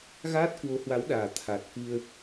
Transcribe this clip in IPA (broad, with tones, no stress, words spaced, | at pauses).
ɣaː˦˥t̚kwo˨˦hwa˨˦wɗaː˨˩ t̪ʰa˨˩t̚kɨ˧ə̯